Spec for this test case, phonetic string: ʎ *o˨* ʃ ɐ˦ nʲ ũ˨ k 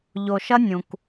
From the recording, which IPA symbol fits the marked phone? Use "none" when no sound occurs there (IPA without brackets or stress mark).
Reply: o˨